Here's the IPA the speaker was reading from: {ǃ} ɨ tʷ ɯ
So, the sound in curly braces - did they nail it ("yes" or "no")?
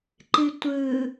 yes